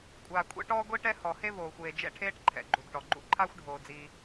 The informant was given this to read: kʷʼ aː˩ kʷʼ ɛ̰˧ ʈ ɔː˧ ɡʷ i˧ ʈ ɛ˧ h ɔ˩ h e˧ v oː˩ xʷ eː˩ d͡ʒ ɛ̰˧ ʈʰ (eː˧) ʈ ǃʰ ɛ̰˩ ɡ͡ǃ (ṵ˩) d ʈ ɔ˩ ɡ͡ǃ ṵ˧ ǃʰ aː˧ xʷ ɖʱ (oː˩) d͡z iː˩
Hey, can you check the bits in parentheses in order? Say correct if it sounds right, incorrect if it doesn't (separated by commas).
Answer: correct, incorrect, correct